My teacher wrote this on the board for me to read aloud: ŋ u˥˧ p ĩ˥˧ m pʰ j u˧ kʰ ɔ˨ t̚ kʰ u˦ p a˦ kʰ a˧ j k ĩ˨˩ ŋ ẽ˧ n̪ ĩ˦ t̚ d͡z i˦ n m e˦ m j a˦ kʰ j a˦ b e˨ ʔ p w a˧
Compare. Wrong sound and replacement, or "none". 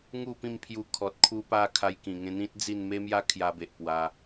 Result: i˦ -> i˥˧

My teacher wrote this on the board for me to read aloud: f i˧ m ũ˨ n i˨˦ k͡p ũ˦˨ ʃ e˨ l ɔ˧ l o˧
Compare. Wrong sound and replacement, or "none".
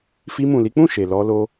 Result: n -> l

